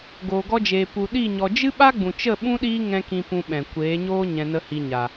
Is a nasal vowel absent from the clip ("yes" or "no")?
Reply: no